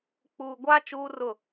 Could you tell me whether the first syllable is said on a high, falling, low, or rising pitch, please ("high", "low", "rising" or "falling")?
low